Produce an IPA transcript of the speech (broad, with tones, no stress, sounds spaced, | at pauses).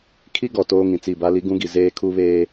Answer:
kʰ i˦ ɡ ɔ˨ t oː˦ ŋ ĩ˨ t͡s i˦˨ b a˦ l i˦ ɡ ũ˦ ɡ i˨ z eː˦ kʰ u˦ β eː˦